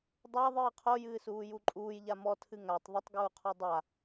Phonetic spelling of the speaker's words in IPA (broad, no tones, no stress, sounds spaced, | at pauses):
dˤ a ðˤ ɨː qʰ o j ɨː s uː j u ǃʼ uː j ʎ a m ɔ tʰ ɨ ŋ a tˤ ðˤ ə tˤ ɡ uː qʰ ɔ dˤ a